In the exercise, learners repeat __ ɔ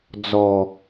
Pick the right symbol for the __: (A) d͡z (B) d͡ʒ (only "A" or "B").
A